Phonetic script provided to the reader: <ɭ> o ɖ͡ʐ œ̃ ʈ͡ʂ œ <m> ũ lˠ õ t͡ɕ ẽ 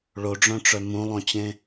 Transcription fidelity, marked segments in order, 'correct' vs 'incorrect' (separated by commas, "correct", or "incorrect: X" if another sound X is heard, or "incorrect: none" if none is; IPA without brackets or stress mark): correct, correct